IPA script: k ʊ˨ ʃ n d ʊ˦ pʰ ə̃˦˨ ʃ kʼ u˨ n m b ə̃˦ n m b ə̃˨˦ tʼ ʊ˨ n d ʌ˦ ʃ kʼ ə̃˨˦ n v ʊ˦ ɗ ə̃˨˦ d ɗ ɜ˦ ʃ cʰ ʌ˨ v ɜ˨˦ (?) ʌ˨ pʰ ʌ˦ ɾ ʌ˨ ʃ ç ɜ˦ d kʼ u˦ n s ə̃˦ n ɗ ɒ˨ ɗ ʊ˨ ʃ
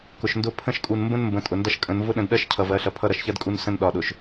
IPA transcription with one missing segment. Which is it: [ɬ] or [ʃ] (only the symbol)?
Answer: ɬ